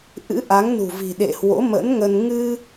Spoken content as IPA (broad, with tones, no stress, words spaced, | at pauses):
ʔɨ̰˧˥ʔa˨˦ŋnṳ˨˩vi̤˨˩ ɗḛ˧˨ hwo̰˧˥mə̰˧˥nŋə˧n ŋɨ˧